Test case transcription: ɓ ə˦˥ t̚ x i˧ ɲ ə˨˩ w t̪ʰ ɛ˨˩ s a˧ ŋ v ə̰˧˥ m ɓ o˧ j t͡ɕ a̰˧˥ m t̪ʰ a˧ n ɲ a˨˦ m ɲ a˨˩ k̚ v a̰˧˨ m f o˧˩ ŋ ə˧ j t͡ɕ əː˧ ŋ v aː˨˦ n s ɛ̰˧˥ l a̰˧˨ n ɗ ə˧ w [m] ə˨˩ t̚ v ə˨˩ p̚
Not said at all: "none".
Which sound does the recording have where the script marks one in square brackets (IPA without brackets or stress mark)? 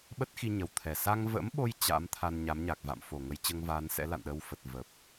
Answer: f